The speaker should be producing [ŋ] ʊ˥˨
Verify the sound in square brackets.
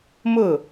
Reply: incorrect: m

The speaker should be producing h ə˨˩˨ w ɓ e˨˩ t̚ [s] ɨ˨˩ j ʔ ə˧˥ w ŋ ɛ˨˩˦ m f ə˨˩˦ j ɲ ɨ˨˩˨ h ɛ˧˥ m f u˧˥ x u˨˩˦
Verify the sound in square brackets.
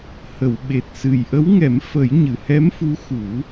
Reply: correct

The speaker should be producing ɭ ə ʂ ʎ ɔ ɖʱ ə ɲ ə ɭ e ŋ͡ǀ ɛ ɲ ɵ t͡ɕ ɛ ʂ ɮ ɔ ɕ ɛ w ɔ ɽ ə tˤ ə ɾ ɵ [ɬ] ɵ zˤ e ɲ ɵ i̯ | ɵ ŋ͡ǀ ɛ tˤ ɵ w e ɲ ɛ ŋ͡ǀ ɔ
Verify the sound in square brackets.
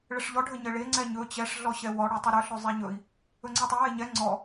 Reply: correct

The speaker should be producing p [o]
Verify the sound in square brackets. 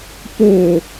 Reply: correct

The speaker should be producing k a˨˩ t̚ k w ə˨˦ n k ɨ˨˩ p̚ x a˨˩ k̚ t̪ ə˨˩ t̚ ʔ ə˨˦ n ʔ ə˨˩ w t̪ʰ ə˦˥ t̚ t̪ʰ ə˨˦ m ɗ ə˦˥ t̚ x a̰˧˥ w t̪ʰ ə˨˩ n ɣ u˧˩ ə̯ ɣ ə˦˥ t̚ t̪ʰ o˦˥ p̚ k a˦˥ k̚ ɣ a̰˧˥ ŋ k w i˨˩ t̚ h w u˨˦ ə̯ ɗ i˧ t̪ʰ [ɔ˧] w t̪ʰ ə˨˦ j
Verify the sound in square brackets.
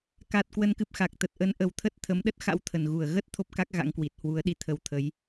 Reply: incorrect: ə˧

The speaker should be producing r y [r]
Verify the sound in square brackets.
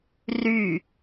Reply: incorrect: none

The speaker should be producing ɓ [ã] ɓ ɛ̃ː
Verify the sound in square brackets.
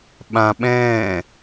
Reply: correct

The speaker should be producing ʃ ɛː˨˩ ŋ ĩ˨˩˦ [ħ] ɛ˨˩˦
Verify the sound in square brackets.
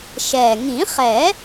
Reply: incorrect: χ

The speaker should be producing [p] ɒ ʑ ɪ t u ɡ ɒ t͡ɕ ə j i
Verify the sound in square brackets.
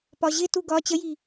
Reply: correct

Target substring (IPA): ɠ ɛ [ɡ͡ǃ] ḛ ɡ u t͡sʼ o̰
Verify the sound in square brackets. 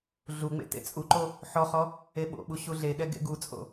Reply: incorrect: ɡ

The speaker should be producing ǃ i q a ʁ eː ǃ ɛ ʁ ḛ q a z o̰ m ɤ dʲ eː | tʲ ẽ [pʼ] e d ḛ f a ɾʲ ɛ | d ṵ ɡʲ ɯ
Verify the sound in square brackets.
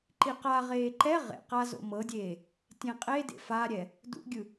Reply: incorrect: qʼ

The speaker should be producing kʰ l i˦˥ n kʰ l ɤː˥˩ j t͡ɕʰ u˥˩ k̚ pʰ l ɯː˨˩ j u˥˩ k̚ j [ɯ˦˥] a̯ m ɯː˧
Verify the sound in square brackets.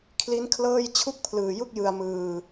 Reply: incorrect: ɯ˧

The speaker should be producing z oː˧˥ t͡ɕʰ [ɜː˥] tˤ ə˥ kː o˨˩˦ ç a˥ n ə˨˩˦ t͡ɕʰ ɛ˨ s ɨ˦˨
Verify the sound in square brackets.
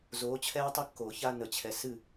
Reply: incorrect: ɛː˥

